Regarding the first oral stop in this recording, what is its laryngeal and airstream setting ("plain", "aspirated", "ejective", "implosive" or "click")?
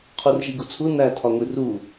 aspirated